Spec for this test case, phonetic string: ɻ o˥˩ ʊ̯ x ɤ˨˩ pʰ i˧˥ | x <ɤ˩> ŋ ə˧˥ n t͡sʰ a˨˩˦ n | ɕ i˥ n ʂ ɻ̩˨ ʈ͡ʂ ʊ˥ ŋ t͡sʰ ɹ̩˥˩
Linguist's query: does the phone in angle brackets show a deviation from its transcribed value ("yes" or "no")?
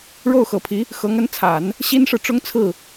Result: yes